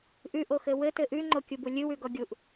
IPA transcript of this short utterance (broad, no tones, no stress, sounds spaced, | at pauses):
ʔ ʉ ʔ o x ɘ w ɘ t ɘ ʔ ʉ ŋ͡ǃ o kʲ u b u lʲ ɨ w ʉ ɡ ɔ ɡʲ u ʔ